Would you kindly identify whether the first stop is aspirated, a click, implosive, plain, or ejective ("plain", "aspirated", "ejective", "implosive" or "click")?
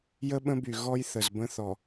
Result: implosive